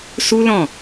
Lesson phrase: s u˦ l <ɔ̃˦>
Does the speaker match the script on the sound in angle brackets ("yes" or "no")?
no